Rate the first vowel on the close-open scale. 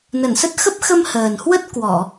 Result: mid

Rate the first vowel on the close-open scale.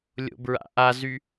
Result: mid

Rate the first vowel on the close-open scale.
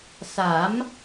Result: open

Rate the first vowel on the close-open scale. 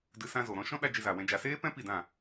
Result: close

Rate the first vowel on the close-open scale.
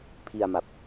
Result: close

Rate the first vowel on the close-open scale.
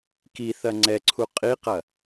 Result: close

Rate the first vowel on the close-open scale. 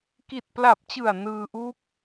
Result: close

